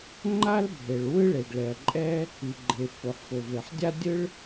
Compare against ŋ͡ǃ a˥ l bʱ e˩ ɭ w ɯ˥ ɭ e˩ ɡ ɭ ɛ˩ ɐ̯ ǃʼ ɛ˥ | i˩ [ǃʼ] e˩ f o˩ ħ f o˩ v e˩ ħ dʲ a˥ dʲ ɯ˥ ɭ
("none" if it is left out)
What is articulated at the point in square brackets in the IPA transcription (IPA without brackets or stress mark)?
ɡ͡ǃ